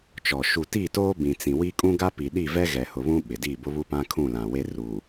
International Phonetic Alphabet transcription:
t͡ʃɔ˨ ʃu˨ti˦˨toː˦ bĩ˨t͡sĩ˨ wi˦ kʼũ˦ɡa˦ pi˨ɗi˦˨vɛ˦ ɣɛ˨hʊ˨βũ˦ ɓɪ˨ diː˦˨bʊ˦ βu˦pã˦kʰũ˦˨ lã˨ we˦ruː˨

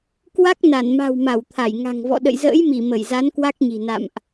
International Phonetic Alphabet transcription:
kwa˦˥k̚ na˧˩nma̤˨˩w ma˧˩wt̪ʰa˧˩j ŋa̤˨˩ŋvɔ̰˧˨ ɗə̰˧˨jzə̰ː˧˥jmi˧˩ mə˧˩jza˨˦n kwa˦˥k̚ɲi̤˨˩ na̰˧˨mʔ

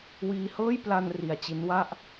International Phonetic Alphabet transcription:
wiː˧hɤː˥˩j pla˧n ri˧a̯t͡ɕi˦˥nwa˥˩ʔ

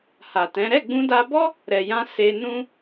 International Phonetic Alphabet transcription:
ha˨tɛ̃˨˦ ɾɛ˦˨ɡ͡bũ˧da˧bɔ˦ | ɾɛ˨jã˧ se˧nũ˦

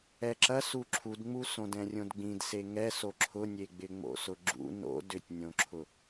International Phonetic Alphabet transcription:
ɛǁɐ suǁʰudŋ͡mu sõdɛ̃rʲõdɡ͡bĩd seŋɛso ǁʰʊnʲeɡ͡bɪ ŋ͡mo̰sʊɡ͡ǁṵ no̰ dʏtʲnʲõǁʰʊ

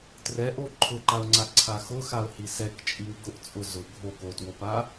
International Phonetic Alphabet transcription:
trɛʔo ǃʰʊǃaʊ̯ŋ͡ǀaǀʰa xʊxaʊ̯hi sɛkt͡ʃʼiw ɡʊʔt͡sʼʊ zʊ ɡʱok otwopa

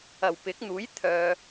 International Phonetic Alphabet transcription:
ɐ˨˩wpɪ˨˥k̚n̪uː˨˥jt̪ʰœː˨

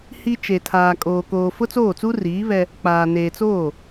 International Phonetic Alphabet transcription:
hi˦ t͡ʃe˨tʰaː˨ kʼoː˨koː˨ fʊ˦t͡soː˦˨t͡su˦riː˨˦ βɛ˦ | k͡paː˨ neː˨t͡soː˦˨

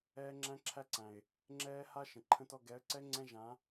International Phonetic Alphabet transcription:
ɛː˦ŋ͡ǁæ̃˦ǁʰæ˦ǀæ̃˨ɪ̯ | ŋ͡ǁɛː˦ha˦ ʃə̃˨ǃʰə̃˦tɔ˦ ɡɛ˨˦ə̯ǀɛ˦ ŋ͡ǀɛ̃˦ʒã˨˦

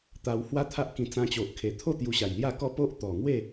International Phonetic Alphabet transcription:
t̪a˧w hwa˦t̪ʰa˦ʔkĩ˧ t͡sã˧t͡ɕo˨ʔkʰe˨˩t̪ʰo˥˧ t̪ju˧ɕa˨˩jlja˥˧kɔ˥˧ po˦ʔt̪ɔ˨˩ŋwe˥˧

